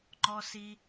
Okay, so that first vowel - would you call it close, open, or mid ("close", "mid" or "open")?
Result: mid